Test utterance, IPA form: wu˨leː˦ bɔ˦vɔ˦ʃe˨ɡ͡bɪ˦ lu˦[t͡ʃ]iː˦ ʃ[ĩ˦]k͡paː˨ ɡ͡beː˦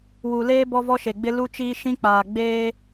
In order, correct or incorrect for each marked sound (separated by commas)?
correct, correct